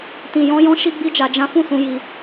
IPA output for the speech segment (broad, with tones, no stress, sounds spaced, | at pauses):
t ĩ˨ j ɔ̃˧ j ɔ̃˧ ʃ i˦ ɡ͡b i˦ d͡ʒ a˧ d͡ʒ ã˦ f ũ˦˨ s ũ˧ j i˧